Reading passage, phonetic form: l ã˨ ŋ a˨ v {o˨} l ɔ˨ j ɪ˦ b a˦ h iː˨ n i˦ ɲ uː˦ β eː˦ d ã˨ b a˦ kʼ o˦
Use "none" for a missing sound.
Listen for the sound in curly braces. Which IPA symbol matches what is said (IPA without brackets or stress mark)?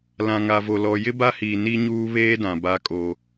o˨